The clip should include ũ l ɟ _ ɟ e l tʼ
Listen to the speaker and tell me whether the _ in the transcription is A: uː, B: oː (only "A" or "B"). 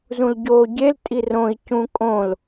B